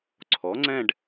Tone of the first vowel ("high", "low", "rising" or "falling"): rising